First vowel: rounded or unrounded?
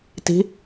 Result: unrounded